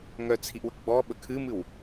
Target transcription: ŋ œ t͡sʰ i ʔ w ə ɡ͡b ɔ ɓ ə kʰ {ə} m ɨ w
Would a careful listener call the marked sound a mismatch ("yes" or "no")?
yes